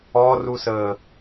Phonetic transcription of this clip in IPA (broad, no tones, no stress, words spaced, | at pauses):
ɔrusəː